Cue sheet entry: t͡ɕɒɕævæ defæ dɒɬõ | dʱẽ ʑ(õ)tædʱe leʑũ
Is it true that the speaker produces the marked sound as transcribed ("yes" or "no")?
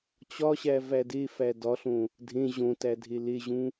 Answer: yes